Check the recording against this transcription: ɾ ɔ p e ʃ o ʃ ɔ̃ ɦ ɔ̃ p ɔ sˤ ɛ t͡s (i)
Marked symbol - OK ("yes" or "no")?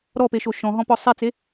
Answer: no